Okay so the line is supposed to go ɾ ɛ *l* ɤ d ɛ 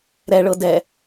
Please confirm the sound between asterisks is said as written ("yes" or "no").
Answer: no